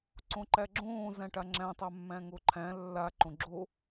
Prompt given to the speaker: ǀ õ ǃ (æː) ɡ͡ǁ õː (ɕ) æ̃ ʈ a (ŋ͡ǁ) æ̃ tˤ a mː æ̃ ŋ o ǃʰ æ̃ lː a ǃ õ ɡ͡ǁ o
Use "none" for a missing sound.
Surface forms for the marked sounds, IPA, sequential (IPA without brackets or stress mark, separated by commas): æ, z, ŋ͡ǁ